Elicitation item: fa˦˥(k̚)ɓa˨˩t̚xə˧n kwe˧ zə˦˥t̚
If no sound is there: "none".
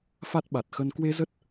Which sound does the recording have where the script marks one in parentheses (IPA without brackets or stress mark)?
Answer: t̚